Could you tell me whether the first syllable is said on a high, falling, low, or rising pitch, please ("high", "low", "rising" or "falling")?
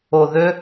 low